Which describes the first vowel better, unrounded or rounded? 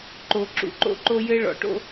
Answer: rounded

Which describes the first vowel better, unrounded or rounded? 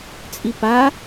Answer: unrounded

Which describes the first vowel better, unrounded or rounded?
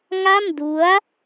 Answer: unrounded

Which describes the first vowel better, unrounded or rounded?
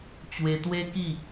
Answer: unrounded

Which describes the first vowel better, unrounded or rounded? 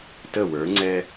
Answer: unrounded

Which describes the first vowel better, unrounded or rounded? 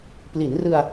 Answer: unrounded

